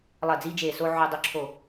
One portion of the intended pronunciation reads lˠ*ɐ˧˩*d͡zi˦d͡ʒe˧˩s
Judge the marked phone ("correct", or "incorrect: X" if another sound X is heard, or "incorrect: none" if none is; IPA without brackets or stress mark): correct